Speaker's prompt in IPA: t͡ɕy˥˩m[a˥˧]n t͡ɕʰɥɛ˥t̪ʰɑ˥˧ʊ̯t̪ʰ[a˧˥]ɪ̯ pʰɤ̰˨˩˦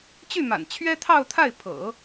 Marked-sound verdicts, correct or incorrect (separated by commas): incorrect, incorrect